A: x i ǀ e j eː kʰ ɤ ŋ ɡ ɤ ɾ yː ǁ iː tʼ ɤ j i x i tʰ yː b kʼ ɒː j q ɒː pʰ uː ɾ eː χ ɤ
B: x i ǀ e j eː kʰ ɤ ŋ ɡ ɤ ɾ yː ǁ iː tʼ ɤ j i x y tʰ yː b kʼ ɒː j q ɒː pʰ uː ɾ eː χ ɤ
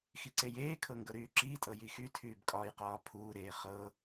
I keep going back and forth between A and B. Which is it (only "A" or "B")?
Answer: B